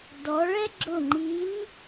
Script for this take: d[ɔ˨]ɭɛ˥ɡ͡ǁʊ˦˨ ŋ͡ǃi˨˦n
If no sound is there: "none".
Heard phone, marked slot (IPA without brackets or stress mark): ɔ˨˦